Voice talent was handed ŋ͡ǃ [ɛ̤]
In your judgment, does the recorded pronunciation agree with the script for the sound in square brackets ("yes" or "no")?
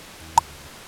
yes